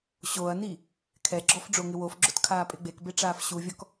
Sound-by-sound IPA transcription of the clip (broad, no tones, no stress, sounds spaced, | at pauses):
ɕ o ɐ̯ n i | kʰ ɛ ɡ͡ǁ ɔ f ɖ͡ʐ o ŋ ɪ w o f ɡ͡ǁ ʊ t kʰ aː pʼ ɪ ɡ͡b e k b e ʈ͡ʂ aː f ɕ u vʲ ɔ k